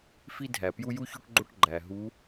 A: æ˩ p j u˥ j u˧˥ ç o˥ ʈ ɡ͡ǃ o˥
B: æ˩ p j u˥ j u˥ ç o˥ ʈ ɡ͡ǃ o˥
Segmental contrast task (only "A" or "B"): B